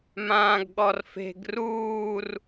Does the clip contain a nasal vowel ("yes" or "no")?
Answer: yes